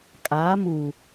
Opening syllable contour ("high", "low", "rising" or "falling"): rising